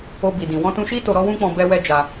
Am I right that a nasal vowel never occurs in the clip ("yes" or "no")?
no